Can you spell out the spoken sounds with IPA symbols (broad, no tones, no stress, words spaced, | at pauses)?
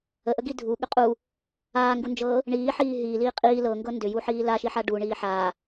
əʔəɡi dʱuɠʏ qʼu | aːŋɡund͡ʒɤː | ɳiːħiː ɦiːliː qʼiː lɤŋɡɤ ndʏjuħiː laʃiħa ɖuɳiː ħa